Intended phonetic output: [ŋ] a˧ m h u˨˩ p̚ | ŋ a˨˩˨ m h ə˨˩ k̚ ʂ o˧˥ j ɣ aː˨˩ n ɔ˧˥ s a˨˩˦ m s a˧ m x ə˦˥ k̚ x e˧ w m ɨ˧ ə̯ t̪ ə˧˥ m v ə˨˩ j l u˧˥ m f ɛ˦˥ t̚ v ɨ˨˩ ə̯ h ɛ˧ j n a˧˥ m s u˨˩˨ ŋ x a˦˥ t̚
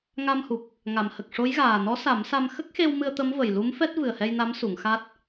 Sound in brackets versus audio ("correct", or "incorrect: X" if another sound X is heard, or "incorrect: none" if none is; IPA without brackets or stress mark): correct